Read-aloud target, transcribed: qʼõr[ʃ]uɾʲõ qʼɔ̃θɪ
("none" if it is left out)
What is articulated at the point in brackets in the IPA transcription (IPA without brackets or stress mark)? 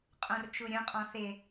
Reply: t͡ʃ